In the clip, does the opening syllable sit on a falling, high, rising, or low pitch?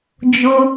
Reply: high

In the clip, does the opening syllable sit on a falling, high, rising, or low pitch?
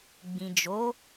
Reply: low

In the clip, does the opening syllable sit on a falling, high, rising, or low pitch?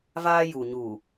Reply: high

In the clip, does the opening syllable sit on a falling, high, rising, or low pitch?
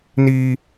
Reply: high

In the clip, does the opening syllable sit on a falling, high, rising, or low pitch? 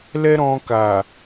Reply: high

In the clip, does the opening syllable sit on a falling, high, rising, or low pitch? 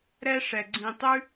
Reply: high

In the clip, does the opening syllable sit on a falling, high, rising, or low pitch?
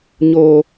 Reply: low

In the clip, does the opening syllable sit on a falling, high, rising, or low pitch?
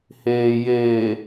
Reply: low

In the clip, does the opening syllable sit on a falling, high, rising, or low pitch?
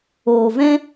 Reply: low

